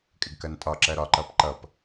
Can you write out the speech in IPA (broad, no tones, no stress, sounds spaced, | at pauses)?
kʼ ɪ ɡ k ɜ n tʼ ɒ ǁ ɜ ɾ ɒ ǃ ʌ p ǃ ʌ p